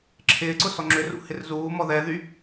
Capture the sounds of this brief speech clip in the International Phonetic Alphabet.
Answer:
ǁʰɪːǀʊ sɔŋ͡ǁʏrṵ hɪrzuːmɔ ðɛðy

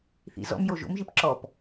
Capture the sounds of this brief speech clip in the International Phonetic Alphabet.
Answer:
θḭzɔ̰mjo ʒo̰mʒip ǁɔp

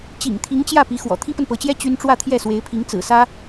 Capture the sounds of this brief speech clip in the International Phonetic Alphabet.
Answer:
t͡ɕḭ˨˩ŋt̪ʰi˧˥ŋt͡ɕjä˥˩ pi˧˥xwɔ̰˨˩ t̪ʰi˥pə˨npɤ˧˥t͡ɕjɛ˥ t͡ɕy˥n ʈ͡ʂwä˥˧t̪ʰjɛ˥˩swe˧˥ɪ̯pʰi˧˥ŋ t͡sɹ̩˨˩sä˥

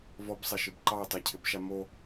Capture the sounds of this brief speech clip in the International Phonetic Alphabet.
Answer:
vɔbsˤɐʃɪb ǃɑe̯tˤacʰɪbʃa mo

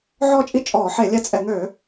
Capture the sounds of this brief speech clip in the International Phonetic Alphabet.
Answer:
ʕɔː˦˨t͡ʃʼi˦˨ t͡ʃʼɔː˧˩˧ħe˧˩˧lʲɛ˦˨t͡sʼɛ˧˩˧ ŋøː˧˩˧

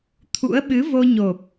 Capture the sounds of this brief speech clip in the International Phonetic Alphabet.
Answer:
t̪ʰṵ˧˥ə̯ɓɨ˨˦vo˧ɲo˨˩p̚

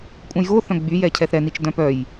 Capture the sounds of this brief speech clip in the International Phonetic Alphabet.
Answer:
kʷʼœ̃jɣoθœ̃ ɡ͡byjɛ cʰɛθɾɛnit͡ʃ dœ̃pœj

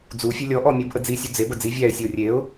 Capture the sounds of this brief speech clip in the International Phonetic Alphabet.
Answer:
d͡zufʲɛ lʲɔʔɔ mʲubʔəd͡zisʲu d͡zebə d͡zi vʲæɪ̯sʲəʊ̯ rʲeʊ̯

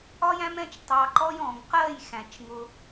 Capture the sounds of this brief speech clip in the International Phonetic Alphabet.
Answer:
ɒ˦jæ̃˦mɛ̃˦t͡ʃ tˤɑ˧ǃɔ˦j ɔ̃˨ŋ qɜ˦˨jxæ̃˨t͡ʃ ŋʊ˧

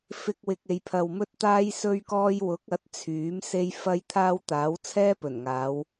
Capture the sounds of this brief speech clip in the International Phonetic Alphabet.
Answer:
fɪ˧k̚wɪ˨k̚ e˨jpʰɐ˨wmɵ˥t̚t̪aː˥j sɵ˥ɥkɔː˥j wʊ˨˥k̚ɐ˨˥t̚ t͡sʰyː˨˥mse˥j fɐ˥j t̪ʰaː˥wt̪aː˨˥w t͡sʰɛː˥pɵ˨˩nŋaː˨˧w

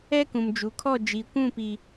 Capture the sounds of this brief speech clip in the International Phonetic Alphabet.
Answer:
ɛ˦kũ˨md͡ʒu˨kʰɔ˦˨ d͡ʒi˨kʷũ˦˨ pi˦

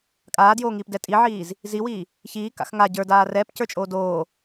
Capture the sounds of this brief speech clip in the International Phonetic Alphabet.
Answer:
kʼaːdjoːŋiːpdɛ tʼiʕiːz | ziwiː | çiːka̰x ŋa ɟə˞daː rɛːpcə˞t͡ʃʼoː doː

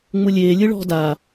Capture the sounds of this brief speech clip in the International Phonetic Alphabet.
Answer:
ŋ͡mulʲeː lʲɯɭɔ̤ daː

